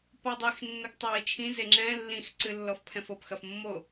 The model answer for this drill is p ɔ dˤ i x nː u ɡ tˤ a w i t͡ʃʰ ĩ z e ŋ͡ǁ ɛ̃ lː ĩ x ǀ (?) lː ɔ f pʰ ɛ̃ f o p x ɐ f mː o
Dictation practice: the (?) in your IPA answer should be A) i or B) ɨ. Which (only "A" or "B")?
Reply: B